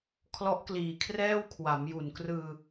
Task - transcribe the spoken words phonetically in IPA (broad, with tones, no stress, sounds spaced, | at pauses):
kʰ l ɔ˦˥ ʔ k l iː˨˩ kʰ r ɛː˥˩ w kʰ w a˩˦ m j u˨˩ n k r ɯː˧